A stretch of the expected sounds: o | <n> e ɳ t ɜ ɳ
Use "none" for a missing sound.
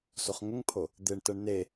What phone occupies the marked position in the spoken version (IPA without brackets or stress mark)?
d̪